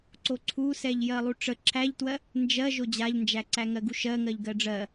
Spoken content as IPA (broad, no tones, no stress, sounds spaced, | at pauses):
ǀ o ǀʰ u s ɛ ʎ j ɜ lˠ u ʈ͡ʂ ə ǁʰ æ ʎ t w ɜ | n d͡ʒ ɜ ʒ o d͡ʑ a ʎ n d͡ʒ æ ǀ æ ŋ ɜ ɡ u ʃ ɜ ŋ ɜ ʎ ɡ ɜ ɖ͡ʐ ɜ